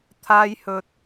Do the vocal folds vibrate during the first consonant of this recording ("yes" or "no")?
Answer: no